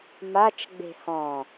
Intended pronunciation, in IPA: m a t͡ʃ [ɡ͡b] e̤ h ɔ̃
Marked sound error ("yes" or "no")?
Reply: no